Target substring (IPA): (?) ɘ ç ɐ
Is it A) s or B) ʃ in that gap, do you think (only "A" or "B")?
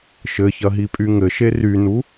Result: B